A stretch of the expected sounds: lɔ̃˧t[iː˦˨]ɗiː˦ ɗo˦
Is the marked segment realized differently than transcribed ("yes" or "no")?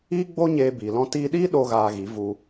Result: yes